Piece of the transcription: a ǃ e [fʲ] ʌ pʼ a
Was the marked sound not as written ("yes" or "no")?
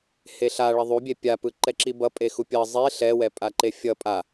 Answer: no